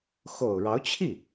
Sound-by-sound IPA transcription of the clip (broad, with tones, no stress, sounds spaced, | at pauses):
x o˨˩ ʊ̯ ɻ ɑ˧˥ ʊ̯ t͡ɕʰ i˥˩